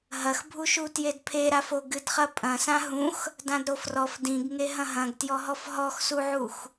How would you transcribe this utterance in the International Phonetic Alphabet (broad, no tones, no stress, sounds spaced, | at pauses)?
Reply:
ɦ ɐ x bʱ u ʃ u t j e d pʰ e ɾ a f o ɡ ɨ d χ ɐ pʼ ɐ̃ s ã ɦ ũ x | d ã d ɾ o f r ɔ f d ĩ ɡ ŋ e ɦ ɐ̃ ɦ ɐ̃ ɡ t j ɔ ɦ ɔ f ɦ ɔ x s u ʕ u x